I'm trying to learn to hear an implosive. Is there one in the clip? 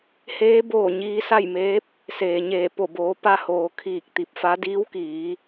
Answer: no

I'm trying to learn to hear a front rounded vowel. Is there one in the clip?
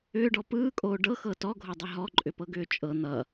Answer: yes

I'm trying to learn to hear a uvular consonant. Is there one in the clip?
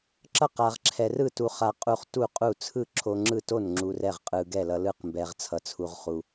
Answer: yes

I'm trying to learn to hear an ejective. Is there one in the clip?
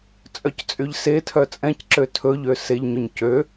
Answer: yes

